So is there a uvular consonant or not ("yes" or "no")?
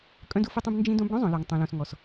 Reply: no